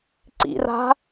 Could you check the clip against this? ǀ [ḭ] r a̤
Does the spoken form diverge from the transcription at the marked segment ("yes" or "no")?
no